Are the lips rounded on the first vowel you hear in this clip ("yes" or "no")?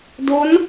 yes